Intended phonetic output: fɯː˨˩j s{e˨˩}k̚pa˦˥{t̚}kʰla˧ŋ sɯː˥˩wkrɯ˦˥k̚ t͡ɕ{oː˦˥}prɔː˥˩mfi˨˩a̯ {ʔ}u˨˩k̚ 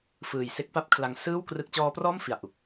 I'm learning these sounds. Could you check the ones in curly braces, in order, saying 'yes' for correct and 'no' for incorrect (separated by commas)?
no, no, no, yes